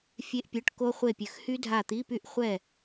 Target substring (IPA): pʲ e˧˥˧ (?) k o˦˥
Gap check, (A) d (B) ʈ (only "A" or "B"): B